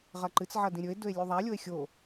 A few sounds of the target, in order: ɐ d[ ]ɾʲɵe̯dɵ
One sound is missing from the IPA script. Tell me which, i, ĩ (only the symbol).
ĩ